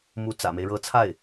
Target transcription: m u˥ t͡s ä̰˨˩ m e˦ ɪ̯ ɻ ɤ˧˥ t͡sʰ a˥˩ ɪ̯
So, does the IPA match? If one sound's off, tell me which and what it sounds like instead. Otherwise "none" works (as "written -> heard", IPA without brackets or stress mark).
none